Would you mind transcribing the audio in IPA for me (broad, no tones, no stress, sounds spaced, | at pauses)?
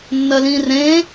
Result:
nː ɜ l ĩː r ẽː